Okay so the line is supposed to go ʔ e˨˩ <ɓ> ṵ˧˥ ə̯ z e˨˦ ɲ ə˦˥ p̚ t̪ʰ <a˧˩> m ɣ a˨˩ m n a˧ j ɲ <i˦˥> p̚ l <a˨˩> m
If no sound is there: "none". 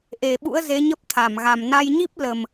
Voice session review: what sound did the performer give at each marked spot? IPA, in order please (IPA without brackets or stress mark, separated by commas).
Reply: ɓ, a˧˩, i˦˥, ə˨˩